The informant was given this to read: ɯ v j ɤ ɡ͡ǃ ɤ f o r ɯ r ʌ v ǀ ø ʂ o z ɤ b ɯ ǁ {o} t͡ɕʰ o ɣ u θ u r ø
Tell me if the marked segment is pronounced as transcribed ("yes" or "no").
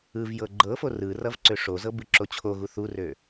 yes